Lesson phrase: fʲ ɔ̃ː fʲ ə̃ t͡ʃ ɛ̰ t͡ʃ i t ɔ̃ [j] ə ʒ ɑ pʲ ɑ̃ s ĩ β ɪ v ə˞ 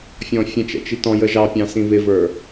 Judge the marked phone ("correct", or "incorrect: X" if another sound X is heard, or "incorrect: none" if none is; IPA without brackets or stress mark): correct